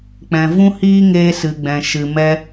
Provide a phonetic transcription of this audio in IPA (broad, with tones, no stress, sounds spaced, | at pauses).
k͡p ɛ̃˨ v ũ˦ h iː˦ ŋ eː˧ s ɨ˨ ɡ͡b ɛ̃˨ ʃ ɨ˨ m ɛ˧